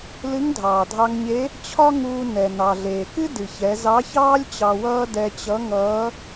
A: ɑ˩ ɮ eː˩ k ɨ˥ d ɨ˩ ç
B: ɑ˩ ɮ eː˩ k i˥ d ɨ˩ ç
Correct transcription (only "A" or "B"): A